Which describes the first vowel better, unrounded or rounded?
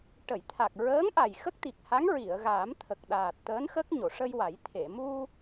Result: unrounded